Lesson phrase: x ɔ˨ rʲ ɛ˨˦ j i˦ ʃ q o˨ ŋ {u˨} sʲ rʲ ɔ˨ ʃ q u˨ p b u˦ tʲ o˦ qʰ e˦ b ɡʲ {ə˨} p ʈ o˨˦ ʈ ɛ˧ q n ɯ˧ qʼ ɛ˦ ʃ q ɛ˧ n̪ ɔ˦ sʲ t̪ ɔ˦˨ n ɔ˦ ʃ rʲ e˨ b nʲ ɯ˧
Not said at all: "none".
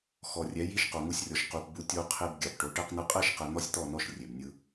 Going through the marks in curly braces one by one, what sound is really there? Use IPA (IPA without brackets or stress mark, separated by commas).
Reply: u˧, a˨